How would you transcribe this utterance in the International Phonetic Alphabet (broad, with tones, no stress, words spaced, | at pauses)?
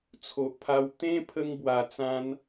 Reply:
t͡sʰo˨ʔpʰa˧w t̪ẽ˦ pʰə˦ŋbwa˧t͡sã˦n